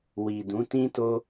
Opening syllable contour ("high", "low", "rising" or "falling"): low